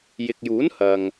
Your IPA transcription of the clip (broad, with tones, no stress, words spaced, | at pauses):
jɪ˨k̚juː˨˥n hɐ˨ŋ